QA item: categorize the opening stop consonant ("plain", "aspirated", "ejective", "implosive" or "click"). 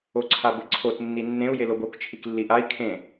click